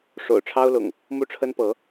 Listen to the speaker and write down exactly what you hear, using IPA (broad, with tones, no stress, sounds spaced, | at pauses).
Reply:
ʂ o̰˨˩ ʊ̯ ʈ͡ʂʰ ɑ˦ ʊ̯ l ʊ̰˨˩ ŋ | m u˦ ʈ͡ʂʰ ə˦ n p ɤ˨˦